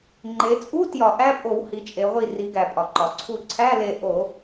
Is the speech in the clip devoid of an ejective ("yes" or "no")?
no